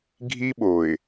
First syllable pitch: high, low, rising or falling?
high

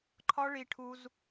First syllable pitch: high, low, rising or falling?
high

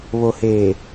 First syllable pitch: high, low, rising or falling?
low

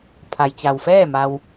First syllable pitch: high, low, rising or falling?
low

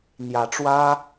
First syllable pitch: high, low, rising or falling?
low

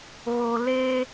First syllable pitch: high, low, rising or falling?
low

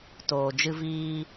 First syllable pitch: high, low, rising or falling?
low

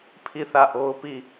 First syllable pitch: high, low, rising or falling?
falling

